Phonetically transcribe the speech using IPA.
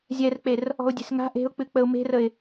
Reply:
zʲɛrk͡per | ɔ̤ʊ̯dʲe̤sŋa̤ ʔe̤ʊ̯k͡pɨ k͡pəʊ̯me̤rəɪ̯

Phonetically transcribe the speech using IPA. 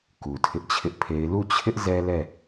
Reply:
ku˨tʰɪ˦ʔt͡ɕʰɪ˦ʔpʰe˦ɪ̯ lu˦˨t͡ɕʰɪ˦ʔ zɛ˦lɛ˦˨

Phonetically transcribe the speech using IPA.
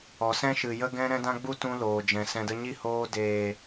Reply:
ɔ˨sɛ̃˦ʃɨ˨ jə˦ɡɛ̃˦ɾɛ̃˦ dã˦ɡ͡bu˦ tũ˧ loː˨d͡ʒɛ̃˨sɛ̃˧ də˧ɲi˦˨hoː˧ deː˨

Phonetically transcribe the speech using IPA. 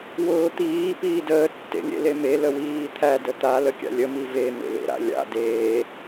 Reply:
wʊːt̪iː piːdəː tːḛlʲḛleme ləwiːt̪ʰæ dət̪a ləkʲa̰lʲə mive mḛlḛɾa̰lʲa̰ deː

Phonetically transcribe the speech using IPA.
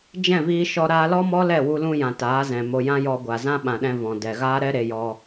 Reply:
d͡ʒɛ̃˦˨viː˧ʃɔ˧ ɾaː˧lɔ˦mɔ˦ lɛ˦˨wu˧lũ˧jã˨ taː˨˦zɛ̃˨mo˧ jã˦jɔ˧ɡʷa˨ zã˦ɓã˨ɗɛ̃˧ vɔ̃˨ dɛ˨ɣaː˦ɾɛ˦ ɾe˧jɔ˧

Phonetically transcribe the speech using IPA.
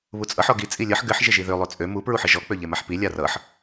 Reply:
βut͡sʼʌħ ɔɡi t͡sʼilʲʌħ ɡɘħ ʒɪʒiðø lˠøt͡sʼø mu pɹuħɘʒɔ k͡pøʎemaħpi lʲarʌħ

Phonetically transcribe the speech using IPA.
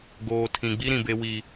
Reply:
ɡoː˨ tʰĩ˨ɡ͡bi˦ ɾĩ˨be˦wi˦

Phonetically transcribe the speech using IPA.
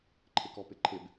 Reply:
ǃʰɪkɔpɪǃʰɪb

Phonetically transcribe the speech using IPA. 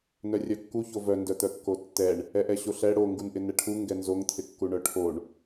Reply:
nœrʲœkːu çovœ ndœt̪œkːotːɛɳ | ɛʔɛɕoɬɛ ɽo ŋɡunʔɪnɛʈʰu ŋɡɛnzoŋ t̪ʰɪkːuɳœʈʰoɳ

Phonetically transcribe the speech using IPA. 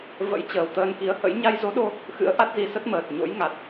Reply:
və̰˧˥j t͡ɕəː˨˩wt̪əː˧nki˨˦ə̯hə̰˧˥j ɲa˧jzo˨˦ɗo˧ | xɨ̰˧˥ə̯ʔa˦˥t̚zi˨˦ sə˦˥t̚məː˨˩t̚ ɲo̰˧˥jŋa˨˩t̚

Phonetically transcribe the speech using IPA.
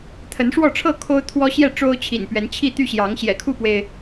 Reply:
t̪ʰə˨˦nʂwɔ˥˨ʈ͡ʂʰɤ˥˨ kʰo˦ʊ̯t̪ʰwɔ˦ɕjɛ˥˨ ʈ͡ʂo˦ʊ̯t͡ɕʰḭ˨˩n pɥɛ˨˦nt͡ɕʰi˥˨ t̪y˥˨ɕjɑ˨˦ŋ ɕjɛ̰˨˩kʰu˥˨pwe˩ɪ̯

